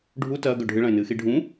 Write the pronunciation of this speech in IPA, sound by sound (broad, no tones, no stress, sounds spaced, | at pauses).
ɖʱ u t ɐː ɡ ɵ ɖʱ ɨ ɭ ɐ̃ e̯ n ɨː x i ɖʱ ũ